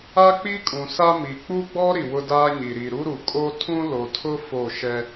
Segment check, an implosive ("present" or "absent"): absent